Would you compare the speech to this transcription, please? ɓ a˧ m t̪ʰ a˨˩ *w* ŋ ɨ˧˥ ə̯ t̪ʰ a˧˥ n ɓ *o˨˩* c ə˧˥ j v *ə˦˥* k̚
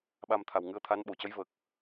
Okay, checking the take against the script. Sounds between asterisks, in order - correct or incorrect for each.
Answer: correct, incorrect, incorrect

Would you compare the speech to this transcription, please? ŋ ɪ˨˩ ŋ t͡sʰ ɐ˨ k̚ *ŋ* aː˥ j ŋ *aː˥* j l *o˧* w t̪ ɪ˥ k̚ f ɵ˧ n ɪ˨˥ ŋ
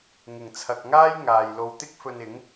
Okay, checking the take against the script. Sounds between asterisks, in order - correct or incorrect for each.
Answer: correct, incorrect, correct

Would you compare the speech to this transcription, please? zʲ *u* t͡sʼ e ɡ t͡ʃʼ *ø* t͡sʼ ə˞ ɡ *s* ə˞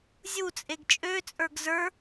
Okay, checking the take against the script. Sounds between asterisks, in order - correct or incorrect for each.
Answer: correct, correct, incorrect

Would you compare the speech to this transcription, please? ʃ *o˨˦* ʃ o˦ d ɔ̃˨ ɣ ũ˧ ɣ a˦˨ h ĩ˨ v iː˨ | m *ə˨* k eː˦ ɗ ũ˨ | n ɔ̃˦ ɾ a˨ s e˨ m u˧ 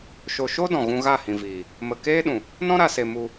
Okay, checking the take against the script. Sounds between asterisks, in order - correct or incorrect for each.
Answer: incorrect, correct

